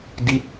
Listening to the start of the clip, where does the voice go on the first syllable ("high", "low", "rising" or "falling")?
falling